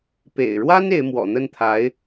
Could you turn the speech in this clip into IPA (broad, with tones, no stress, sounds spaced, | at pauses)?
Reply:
p ḛ˨˩ ɪ̯ ɻ w a˥ n e˧˥ ɪ̯ m w ɔ̰˨˩ n̪ ə˥˩ n t̪ʰ a˧˥ ɪ̯